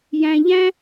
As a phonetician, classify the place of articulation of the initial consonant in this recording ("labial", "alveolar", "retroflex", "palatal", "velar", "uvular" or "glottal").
palatal